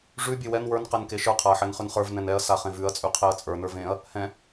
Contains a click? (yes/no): no